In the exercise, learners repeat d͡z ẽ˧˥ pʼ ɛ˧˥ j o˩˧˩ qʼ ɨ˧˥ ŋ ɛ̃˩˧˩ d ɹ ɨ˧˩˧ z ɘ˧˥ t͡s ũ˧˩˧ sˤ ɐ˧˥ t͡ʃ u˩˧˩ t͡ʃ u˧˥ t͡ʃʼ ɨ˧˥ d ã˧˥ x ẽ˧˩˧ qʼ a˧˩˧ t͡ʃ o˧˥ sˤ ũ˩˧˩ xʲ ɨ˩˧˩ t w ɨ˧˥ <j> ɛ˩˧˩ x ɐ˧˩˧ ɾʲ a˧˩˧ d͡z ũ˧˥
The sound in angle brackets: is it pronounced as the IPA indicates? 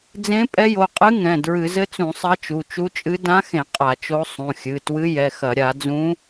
yes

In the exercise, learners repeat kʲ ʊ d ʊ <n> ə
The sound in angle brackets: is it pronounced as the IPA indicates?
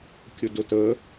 no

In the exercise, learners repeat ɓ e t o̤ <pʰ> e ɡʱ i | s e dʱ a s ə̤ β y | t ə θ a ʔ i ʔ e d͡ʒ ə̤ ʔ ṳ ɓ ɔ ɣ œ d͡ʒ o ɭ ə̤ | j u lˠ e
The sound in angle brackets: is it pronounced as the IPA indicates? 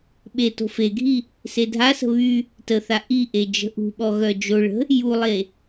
no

